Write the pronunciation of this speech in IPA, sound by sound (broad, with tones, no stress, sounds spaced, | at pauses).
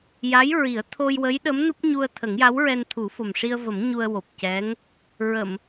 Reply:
j a˧˥ j ɹ i˨˩˦ ə̯ t̪ʰ o˧ j w ə˧˥ j ɗ ə˧˥ m n u˦˥ p̚ ɲ u˧ ə̯ t̪ʰ ə˨˩˦ ŋ j a˧˥ w ɹ ɛ˧ n t̪ʰ u˨˩˦ f o˨˩ m ʂ i˧ ə̯ v ə˨˩˦ m ɲ u˧ ə̯ w o˨˩ p̚ c ɛ˧˥ ŋ | ɹ ə˨˩˨ m